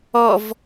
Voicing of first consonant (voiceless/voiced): voiced